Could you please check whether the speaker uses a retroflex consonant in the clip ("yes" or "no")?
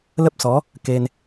no